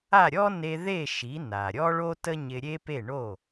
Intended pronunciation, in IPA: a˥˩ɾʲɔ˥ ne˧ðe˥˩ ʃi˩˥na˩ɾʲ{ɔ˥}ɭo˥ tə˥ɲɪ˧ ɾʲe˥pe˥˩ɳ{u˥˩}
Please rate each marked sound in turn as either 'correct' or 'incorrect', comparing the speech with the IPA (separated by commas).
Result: correct, incorrect